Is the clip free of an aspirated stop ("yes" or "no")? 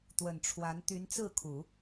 no